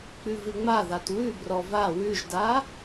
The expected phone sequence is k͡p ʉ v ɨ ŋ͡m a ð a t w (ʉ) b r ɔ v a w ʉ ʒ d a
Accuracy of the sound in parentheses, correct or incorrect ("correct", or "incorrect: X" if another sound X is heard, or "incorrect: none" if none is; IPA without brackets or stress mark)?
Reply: correct